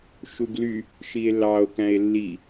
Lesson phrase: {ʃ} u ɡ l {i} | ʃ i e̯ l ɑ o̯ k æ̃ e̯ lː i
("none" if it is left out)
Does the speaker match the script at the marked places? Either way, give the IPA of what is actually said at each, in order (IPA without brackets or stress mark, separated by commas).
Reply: ʃ, y